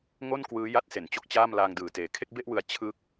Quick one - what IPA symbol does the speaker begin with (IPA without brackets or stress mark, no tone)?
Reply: ŋ